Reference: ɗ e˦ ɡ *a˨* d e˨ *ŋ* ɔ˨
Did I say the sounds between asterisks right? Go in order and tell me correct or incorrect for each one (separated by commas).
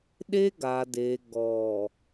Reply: correct, incorrect